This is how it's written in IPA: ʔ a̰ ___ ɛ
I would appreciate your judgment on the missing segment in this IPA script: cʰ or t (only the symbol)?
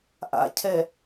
cʰ